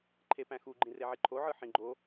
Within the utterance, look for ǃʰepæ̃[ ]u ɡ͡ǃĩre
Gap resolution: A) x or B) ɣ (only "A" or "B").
A